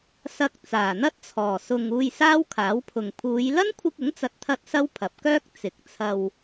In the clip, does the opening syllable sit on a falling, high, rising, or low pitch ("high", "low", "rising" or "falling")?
low